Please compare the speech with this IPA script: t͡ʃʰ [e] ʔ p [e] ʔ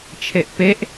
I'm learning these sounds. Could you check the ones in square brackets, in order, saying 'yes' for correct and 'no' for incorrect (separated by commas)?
yes, yes